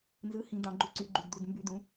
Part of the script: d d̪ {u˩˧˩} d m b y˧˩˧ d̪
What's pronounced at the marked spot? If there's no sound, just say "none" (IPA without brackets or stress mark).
u˩˧˩